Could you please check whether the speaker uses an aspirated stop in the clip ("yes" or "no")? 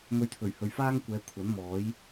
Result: yes